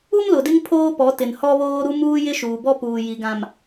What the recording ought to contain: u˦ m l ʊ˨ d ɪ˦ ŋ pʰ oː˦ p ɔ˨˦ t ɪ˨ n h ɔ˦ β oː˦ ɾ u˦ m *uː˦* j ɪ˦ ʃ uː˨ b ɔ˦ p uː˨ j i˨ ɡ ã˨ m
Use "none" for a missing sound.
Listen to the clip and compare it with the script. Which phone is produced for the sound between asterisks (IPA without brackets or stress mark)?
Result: uː˦